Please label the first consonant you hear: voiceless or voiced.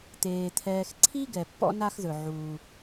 voiceless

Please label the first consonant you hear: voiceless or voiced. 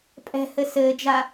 voiceless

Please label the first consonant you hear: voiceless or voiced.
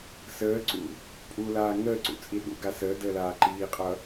voiceless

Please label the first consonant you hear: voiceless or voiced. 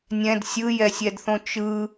voiced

